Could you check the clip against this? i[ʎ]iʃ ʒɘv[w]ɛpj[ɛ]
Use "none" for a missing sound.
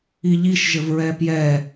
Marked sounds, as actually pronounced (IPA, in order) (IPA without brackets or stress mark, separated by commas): ʎ, ɹ, ɛ